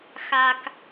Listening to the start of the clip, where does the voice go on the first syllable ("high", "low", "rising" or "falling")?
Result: low